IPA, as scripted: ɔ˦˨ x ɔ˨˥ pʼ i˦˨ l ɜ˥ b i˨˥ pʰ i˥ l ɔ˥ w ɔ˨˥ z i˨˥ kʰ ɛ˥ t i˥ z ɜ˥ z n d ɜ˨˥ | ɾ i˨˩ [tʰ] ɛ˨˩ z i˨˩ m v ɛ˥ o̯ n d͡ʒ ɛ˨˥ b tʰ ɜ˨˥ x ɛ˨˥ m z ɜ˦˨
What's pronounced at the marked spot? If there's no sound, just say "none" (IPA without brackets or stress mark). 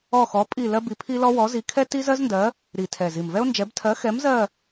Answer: tʰ